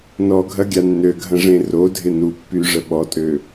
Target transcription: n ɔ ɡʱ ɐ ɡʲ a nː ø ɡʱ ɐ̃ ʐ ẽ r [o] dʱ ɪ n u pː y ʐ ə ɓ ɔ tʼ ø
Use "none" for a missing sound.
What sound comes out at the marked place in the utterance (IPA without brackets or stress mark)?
o